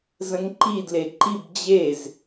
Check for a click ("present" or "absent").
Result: present